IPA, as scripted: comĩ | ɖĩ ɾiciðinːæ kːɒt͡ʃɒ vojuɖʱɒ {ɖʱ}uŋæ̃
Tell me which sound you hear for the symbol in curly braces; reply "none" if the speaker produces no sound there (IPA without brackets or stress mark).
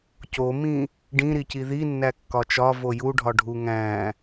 ɖʱ